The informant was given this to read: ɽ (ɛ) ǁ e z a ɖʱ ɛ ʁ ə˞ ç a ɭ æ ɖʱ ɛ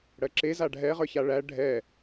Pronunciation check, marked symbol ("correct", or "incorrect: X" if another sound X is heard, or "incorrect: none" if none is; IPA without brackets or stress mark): incorrect: ɜ